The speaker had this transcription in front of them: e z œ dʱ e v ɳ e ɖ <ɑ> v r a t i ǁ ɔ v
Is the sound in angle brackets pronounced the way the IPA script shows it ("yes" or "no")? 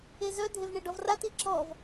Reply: no